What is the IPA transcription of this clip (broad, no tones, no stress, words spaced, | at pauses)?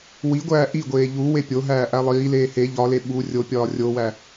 wiɡʷæː ʔiɡʷeː ʎu wepʲoɦæː ʔælˠiːleː he ʎɒle ɓu rʲopʲɒː rʲowæ